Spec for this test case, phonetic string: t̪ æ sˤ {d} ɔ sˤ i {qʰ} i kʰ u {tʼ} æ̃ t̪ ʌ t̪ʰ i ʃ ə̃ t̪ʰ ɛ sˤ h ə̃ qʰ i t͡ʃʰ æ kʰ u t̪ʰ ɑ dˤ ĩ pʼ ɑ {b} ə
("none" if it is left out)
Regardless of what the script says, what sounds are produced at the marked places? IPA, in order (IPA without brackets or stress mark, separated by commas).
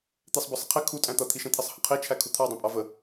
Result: b, qʰ, tʼ, v